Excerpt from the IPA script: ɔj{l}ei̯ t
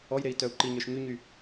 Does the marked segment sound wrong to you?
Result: yes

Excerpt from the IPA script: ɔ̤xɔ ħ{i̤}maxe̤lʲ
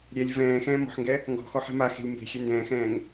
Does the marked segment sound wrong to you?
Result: yes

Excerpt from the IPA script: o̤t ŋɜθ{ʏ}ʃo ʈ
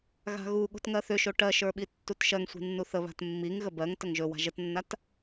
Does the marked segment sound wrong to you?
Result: no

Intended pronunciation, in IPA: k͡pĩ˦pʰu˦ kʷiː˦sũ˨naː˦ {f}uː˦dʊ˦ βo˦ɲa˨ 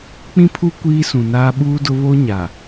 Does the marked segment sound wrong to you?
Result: yes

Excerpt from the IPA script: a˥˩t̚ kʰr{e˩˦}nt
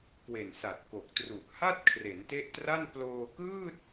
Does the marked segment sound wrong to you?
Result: no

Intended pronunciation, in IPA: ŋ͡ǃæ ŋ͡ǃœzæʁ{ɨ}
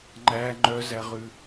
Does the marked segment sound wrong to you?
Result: yes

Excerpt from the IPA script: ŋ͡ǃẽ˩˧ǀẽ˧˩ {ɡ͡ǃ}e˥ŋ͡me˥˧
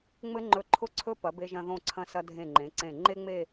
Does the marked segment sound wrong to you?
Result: yes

